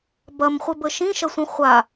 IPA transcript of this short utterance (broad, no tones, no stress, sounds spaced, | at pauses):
b ɐ m χʷ ɪ b ə ʃ ĩ ʃ ɐ sʷ ə̃ χʷ a